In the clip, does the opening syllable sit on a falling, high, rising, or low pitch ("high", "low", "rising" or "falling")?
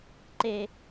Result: high